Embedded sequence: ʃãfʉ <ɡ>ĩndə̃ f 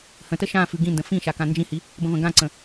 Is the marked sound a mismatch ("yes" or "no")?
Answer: no